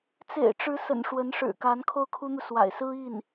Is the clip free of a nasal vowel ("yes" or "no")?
yes